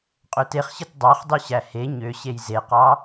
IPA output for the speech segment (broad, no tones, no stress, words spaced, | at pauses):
qʼøteχɕɯt dˤɑχdˤy ɕæhe ɲøɕej zeqɑ